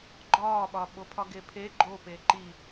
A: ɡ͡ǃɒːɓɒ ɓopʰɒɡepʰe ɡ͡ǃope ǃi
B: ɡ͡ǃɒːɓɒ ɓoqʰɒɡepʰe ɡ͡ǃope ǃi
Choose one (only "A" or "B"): A